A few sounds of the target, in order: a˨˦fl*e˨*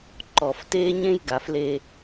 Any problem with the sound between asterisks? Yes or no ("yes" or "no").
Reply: yes